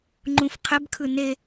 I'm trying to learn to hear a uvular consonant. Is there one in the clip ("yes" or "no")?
yes